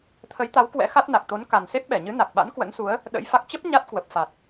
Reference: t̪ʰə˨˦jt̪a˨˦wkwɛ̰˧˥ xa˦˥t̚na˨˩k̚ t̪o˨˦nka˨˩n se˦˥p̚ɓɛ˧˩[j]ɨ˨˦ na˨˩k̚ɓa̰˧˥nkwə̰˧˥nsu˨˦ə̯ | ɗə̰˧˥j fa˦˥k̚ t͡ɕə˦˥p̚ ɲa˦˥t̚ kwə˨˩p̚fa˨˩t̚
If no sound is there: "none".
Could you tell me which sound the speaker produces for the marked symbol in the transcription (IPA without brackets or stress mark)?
ɲ